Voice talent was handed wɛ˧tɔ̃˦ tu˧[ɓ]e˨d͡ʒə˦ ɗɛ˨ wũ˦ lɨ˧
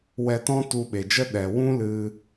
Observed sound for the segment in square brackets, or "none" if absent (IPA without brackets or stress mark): ɓ